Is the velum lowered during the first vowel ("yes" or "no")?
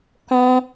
yes